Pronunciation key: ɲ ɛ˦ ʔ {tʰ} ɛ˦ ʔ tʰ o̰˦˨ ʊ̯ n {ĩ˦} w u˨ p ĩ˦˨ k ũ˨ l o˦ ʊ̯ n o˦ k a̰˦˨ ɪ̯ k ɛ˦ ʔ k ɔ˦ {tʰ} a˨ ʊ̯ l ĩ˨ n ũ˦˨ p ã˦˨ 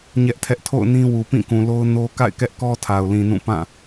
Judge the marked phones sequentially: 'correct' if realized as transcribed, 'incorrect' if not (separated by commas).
correct, correct, correct